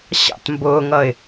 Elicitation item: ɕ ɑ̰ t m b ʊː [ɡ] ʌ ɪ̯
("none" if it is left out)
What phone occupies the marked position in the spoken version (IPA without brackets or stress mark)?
ŋ